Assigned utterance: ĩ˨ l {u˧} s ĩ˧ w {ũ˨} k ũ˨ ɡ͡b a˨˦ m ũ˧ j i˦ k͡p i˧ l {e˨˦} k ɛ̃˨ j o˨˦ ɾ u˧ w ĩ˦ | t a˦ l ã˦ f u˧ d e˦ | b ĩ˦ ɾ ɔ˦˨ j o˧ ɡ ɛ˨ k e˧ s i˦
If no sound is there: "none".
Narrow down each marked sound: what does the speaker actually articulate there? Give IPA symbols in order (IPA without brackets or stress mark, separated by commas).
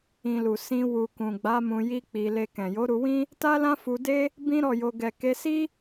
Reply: u˨, u˨, e˧